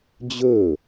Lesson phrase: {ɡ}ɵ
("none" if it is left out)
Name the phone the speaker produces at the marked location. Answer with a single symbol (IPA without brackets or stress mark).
d͡ʑ